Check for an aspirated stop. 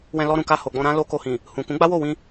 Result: absent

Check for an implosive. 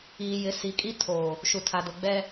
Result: absent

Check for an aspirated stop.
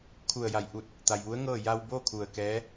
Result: present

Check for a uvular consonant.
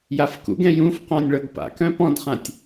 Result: present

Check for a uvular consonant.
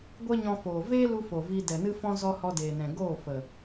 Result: absent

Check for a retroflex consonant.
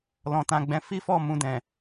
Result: absent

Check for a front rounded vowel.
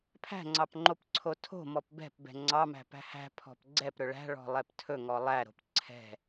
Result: absent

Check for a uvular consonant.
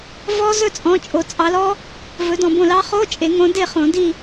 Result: present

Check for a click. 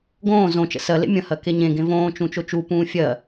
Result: absent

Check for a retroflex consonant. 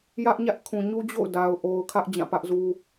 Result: absent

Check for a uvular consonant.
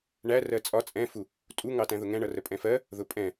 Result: absent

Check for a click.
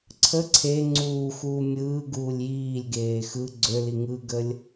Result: present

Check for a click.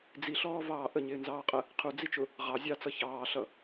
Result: absent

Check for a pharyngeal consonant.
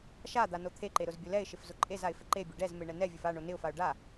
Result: absent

